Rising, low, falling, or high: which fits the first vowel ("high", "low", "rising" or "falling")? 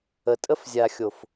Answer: low